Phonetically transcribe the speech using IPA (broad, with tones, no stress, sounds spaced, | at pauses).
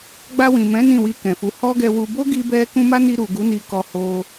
ɡ͡b a˧ w ĩ˨ m ɛ̃˨˦ n ĩ˦˨ w i˧ k ɛ̃˨ f u˨˦ h ɔ˦ ɡ ɛ˧ w u˧ b o˦ ɡ i˧ b ɛ˧ k ũ˧ m a˦ n i˧ ɾ u˨ ɡ u˨˦ n i˧ k ɔ˧ h o˧